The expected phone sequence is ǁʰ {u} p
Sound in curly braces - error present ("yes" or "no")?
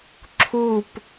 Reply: no